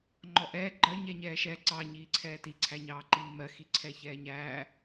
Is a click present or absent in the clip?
present